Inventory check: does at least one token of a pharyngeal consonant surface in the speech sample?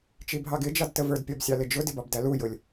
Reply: no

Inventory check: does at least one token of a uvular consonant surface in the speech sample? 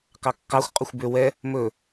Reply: yes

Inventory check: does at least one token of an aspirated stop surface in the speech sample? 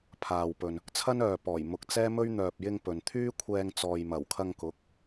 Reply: yes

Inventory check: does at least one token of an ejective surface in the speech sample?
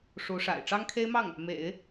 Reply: no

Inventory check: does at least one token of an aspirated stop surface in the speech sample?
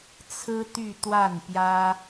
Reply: yes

